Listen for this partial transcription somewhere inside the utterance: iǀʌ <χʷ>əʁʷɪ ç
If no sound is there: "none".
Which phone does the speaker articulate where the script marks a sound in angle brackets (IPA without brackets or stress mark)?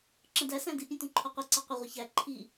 qʷ